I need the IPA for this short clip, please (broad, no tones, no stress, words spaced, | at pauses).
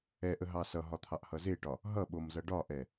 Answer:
ɛʔəɦɑ sʌɦɒt̪ʰɑʔhʌ zeʈɒ | ɦʌɓomzʌ ɖɒʔɛ